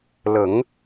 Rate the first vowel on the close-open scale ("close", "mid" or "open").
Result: mid